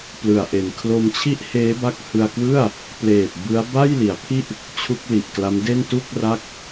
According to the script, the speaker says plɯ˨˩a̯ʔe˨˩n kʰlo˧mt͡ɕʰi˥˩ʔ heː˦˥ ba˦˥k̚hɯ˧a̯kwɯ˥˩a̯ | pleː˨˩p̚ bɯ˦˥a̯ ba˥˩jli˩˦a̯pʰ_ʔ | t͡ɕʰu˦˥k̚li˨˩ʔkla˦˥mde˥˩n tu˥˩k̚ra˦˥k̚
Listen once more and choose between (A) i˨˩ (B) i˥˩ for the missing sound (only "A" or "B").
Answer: B